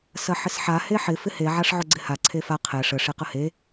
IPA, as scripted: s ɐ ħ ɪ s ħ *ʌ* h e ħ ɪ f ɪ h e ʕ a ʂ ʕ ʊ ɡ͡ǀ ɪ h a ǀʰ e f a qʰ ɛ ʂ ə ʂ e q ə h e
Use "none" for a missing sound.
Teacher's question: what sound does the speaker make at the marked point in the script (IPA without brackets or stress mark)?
a